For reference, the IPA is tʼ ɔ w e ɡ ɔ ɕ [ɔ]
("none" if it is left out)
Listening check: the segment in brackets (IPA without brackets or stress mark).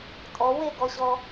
ɔ